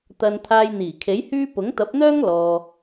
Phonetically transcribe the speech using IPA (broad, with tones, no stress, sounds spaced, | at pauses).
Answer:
t̪ ɐ˨ n t̪ʰ aː˧ j n̪ iː˨˩ kʰ e˨˥ j h yː˥ p ʊ˨˥ ŋ t̪ ɐ˨˥ p̚ n̪ œː˥ ŋ l ɔː˨